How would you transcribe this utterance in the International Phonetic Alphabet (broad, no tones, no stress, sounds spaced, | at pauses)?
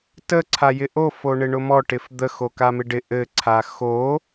t ə ǀʰ a j ɪ ʔ o f o ɳ ɪ ɳ ʊ m ɔ ʈ ɪ f d̪ ə x o k a m ɪ ɖ ɪ ʔ ɘ ǀʰ a x o